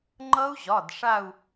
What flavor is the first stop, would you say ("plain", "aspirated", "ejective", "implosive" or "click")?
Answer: click